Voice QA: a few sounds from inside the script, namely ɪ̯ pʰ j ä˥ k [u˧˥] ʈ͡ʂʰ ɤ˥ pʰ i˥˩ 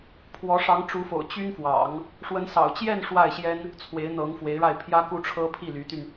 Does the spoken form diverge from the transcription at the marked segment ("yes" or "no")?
yes